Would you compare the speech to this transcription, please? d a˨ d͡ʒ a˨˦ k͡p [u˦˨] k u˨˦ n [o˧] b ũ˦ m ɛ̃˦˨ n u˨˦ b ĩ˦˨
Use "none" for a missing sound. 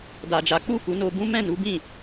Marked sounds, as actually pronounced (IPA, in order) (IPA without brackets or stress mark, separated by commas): u˦˨, o˧